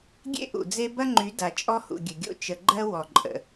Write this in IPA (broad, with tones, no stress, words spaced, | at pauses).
ɡʲḛ˦ʔṵ˨d͡ze˦ bɐ˦ŋ͡ǃy˨˦ da˨t͡ʃʼɔ˦hṵ˨ ɡʲə˨ɡʲo̰˦ t͡ʃə˨ɡ͡ǃɜ˦ wɔ˨ǃʼə̰˨